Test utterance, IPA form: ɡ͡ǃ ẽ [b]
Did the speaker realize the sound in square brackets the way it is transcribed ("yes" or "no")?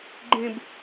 yes